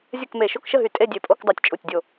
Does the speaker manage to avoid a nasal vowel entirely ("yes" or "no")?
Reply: yes